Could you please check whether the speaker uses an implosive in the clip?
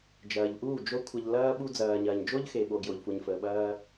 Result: yes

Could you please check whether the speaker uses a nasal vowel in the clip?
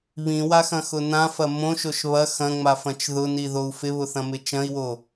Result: yes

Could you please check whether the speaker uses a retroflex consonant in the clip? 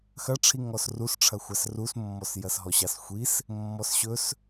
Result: yes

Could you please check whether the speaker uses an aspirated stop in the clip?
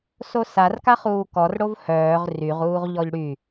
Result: no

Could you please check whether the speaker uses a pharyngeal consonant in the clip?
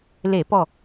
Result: no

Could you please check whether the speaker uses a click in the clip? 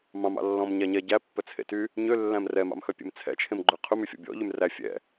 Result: yes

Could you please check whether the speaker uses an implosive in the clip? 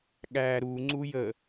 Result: yes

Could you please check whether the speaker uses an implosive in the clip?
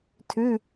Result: no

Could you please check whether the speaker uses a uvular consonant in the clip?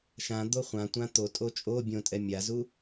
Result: yes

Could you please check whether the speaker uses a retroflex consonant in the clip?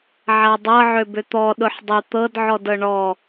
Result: yes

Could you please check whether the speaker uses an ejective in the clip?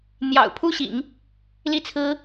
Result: no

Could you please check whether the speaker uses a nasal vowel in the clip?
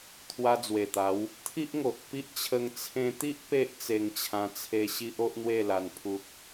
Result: yes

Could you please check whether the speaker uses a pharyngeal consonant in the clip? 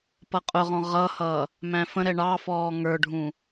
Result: no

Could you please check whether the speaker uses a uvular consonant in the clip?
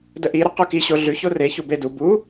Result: yes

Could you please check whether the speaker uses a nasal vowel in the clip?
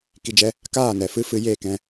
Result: yes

